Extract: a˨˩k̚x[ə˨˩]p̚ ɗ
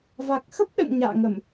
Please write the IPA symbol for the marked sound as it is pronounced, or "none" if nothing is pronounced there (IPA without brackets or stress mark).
ə˦˥